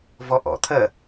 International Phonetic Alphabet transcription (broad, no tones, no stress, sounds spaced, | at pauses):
v ɔ ʔ ɔ̰ t̪ʰ ɜ